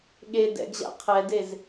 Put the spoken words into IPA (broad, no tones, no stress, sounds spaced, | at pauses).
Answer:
ɠ e d ɛ̰ ɡ ʑ a̰ qʰ ɛ d e z